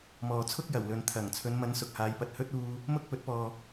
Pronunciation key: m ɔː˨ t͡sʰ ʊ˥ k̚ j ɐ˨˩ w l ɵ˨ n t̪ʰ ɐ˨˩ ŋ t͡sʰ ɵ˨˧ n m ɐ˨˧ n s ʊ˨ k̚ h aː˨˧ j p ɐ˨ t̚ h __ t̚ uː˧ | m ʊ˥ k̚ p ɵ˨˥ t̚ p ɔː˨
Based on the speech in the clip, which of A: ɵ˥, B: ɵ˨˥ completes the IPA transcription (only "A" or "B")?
A